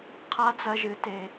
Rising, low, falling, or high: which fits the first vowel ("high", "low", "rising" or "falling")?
rising